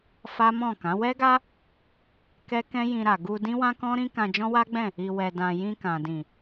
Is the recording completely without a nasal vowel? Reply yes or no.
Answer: no